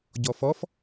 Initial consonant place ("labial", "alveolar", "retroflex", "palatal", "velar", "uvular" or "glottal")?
palatal